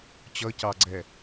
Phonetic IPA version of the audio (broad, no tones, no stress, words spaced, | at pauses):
t͡ɕʌcɑɡ͡ǀɛ